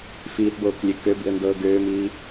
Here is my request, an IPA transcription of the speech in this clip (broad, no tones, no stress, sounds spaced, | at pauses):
f iː t b oː k lʲ ø k ø b ḭ ə̯ n d ɤː ɡ øː m iː